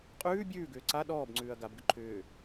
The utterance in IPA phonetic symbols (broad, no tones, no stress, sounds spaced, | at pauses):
qʼ ʉː bʲ ʉː ɡ ʏː ǀ a ɗ ɔː b ŋ͡ǀ ʉː ɐ̯ ɡ a b ɡ ʏ ǃʰ ʏː